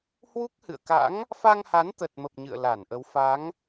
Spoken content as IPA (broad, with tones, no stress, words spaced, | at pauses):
hwu˦˥k̚hɨ̰˧˨ə̯ka̰˧˥ŋ | fa˧ŋha˨˦n t̪ə˨˩t̚mə˨˩p̚ ɲɨ̰˧˨ə̯la˧˩nʔə˨˦w fa˨˦ŋ